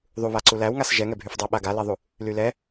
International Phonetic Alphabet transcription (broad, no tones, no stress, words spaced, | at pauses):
ðˤuβa ǀulæwŋas ʒɛŋɛbʱyfdˤɛ ɓaɡaleðˤu | lylɛ